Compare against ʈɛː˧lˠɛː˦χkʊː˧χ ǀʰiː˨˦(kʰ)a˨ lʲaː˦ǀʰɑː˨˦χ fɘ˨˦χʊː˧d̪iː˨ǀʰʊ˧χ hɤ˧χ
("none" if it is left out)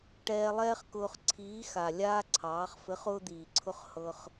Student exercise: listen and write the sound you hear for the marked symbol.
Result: x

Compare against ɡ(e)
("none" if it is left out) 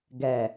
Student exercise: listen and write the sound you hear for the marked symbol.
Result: ɛ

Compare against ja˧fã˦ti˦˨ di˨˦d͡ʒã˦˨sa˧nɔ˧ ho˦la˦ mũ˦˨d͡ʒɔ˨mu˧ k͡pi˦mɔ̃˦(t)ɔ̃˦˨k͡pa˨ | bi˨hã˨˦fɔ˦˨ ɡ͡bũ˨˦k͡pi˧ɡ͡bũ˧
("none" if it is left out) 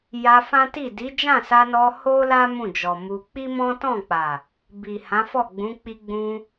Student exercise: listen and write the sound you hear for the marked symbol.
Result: t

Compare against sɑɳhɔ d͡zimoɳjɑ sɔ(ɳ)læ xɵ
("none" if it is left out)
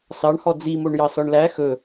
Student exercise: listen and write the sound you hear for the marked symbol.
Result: ɳ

